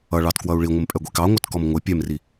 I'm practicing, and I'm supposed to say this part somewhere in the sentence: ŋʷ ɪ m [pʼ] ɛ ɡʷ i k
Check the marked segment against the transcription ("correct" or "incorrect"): correct